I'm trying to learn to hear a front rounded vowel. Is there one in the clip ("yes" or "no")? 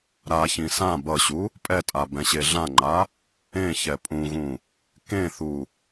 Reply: no